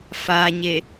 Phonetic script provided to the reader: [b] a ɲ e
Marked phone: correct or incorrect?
incorrect: f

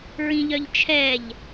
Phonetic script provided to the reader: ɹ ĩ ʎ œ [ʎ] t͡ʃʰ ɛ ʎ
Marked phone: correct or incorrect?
correct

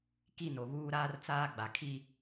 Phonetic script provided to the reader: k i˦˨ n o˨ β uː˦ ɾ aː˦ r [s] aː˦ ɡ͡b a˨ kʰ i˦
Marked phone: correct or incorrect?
incorrect: t͡s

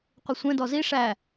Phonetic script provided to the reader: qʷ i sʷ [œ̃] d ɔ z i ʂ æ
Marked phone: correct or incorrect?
incorrect: ɛ̃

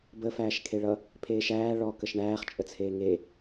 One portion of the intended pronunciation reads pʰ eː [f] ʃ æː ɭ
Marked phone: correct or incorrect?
incorrect: none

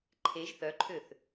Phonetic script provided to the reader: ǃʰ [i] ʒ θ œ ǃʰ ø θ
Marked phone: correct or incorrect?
incorrect: e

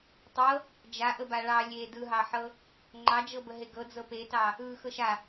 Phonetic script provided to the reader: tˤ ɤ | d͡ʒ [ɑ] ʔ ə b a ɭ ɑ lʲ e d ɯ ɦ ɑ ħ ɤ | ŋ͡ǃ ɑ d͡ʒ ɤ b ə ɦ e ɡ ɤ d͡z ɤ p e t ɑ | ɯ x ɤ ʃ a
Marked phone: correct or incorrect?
incorrect: a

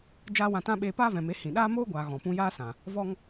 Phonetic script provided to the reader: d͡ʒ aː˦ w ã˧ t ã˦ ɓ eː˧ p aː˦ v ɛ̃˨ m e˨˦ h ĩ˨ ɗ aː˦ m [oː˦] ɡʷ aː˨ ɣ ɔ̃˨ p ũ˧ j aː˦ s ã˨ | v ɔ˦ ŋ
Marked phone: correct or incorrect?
correct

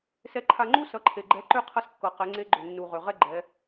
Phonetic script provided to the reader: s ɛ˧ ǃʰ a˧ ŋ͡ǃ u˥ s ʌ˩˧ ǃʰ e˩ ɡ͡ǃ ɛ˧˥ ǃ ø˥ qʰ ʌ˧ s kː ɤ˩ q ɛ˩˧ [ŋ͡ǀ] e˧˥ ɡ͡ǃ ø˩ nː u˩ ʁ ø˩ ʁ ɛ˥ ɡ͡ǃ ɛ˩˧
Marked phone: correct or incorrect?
correct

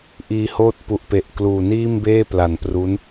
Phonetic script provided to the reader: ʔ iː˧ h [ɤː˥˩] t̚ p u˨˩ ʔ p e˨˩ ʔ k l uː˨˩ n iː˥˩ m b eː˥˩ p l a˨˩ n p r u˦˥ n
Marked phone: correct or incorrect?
incorrect: oː˥˩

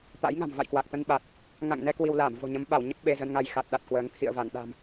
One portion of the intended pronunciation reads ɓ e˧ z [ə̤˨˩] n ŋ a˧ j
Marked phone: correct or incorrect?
incorrect: ə˧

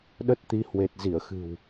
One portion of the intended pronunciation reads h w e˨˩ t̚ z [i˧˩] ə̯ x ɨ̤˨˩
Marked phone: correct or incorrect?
correct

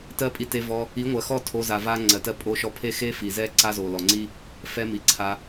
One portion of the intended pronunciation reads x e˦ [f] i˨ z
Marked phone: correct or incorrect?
correct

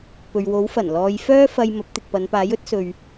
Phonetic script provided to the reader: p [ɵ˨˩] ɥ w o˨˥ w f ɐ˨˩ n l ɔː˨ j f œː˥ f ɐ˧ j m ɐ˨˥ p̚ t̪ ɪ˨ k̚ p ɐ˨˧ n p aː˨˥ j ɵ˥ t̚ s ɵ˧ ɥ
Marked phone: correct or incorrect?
incorrect: ɵ˨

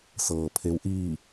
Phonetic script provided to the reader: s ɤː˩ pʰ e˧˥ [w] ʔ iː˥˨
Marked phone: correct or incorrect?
correct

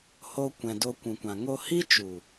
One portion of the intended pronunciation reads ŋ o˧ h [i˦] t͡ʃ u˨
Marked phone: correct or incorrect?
correct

